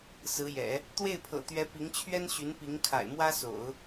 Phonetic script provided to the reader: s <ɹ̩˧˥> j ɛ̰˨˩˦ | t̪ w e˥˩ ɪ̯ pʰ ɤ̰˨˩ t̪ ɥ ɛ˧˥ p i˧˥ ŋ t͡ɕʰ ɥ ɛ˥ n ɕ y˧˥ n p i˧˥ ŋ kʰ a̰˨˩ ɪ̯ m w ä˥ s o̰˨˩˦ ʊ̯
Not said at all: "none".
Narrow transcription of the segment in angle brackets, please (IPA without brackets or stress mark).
ɹ̩˧˥